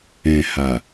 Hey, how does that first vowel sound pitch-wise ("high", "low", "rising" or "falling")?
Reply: low